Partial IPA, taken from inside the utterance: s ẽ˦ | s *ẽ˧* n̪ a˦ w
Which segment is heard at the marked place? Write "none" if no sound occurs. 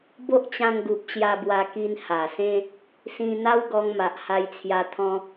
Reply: ĩ˧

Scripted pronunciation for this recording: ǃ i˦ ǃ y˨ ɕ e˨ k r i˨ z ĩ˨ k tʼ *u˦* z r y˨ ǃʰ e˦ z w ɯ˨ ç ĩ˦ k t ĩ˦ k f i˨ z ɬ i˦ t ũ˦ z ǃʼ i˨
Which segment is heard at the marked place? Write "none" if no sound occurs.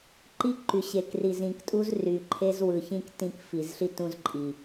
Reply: u˦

